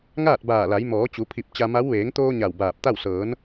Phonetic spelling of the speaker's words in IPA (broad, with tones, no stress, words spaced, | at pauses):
ŋaː˥˨t̚baː˧˩la˩˧j mɔː˩˧t͡ɕu˩˧pʰi˧˩p̚ t͡ɕa˧ma˧˥w ʋeː˩˧ŋt̪oː˧ ɲa˧˩wbaː˧˩p̚t̪a˥˨w sɤː˩˧n